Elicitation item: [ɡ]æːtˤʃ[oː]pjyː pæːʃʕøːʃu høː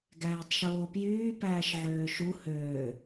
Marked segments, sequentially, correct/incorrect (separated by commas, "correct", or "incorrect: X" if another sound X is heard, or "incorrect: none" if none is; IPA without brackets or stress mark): correct, correct